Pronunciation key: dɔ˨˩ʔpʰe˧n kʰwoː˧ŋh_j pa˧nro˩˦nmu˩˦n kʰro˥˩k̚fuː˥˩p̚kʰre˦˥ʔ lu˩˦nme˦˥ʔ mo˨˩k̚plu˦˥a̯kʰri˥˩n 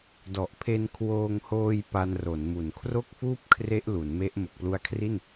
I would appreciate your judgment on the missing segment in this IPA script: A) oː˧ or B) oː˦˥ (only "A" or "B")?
A